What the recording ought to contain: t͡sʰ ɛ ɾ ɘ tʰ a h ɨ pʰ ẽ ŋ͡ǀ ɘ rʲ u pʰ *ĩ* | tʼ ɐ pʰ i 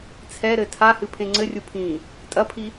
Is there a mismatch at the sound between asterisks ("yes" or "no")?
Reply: yes